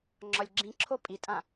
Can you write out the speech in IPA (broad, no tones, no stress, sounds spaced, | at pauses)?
ŋ͡ǁ ɒ lʲ ɡ͡ǁ ĩ ǁʰ o pʼ i tʼ ã